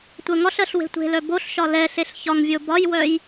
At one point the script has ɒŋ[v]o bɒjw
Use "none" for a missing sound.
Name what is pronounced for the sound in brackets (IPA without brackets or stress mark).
vʲ